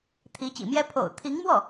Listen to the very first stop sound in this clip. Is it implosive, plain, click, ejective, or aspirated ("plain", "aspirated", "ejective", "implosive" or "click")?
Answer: aspirated